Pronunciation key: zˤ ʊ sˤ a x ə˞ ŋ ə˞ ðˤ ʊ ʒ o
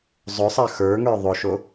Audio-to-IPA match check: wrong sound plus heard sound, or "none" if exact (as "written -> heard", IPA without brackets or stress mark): ʒ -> ʃ